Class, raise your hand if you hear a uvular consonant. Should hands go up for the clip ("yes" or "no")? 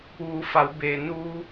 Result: no